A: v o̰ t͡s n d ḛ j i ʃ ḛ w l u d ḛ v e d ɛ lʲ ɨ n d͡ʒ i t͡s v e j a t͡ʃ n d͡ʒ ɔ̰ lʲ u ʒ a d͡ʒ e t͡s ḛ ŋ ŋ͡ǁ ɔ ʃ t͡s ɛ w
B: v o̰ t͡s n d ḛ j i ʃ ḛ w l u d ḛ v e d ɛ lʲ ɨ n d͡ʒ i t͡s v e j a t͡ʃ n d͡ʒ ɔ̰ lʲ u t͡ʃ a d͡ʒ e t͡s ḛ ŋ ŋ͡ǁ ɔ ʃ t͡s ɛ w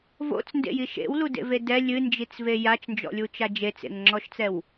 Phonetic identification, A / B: B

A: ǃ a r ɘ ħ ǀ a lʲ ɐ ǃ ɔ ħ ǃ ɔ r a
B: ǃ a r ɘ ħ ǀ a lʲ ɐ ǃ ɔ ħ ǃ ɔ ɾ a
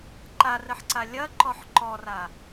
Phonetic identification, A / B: A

